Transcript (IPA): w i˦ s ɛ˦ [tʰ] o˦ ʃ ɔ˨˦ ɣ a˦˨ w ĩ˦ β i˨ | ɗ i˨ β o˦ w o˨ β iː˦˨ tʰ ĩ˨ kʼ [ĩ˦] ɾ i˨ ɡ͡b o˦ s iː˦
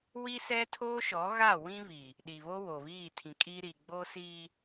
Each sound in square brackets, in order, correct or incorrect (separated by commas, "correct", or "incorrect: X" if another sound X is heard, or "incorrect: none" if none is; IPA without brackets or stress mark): correct, incorrect: i˦